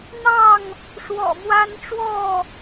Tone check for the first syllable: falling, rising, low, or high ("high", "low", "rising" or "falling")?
falling